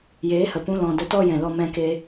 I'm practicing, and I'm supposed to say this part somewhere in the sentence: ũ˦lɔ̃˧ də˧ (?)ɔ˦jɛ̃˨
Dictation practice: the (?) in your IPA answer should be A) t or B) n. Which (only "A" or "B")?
A